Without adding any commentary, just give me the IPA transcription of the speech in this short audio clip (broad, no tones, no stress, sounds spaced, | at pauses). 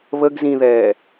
β ə ɡ z ĩ ð ɛː